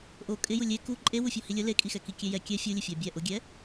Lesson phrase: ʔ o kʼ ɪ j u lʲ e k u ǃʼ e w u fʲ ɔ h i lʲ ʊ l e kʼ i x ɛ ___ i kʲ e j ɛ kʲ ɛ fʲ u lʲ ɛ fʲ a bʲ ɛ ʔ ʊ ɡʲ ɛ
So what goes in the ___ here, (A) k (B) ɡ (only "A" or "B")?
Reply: A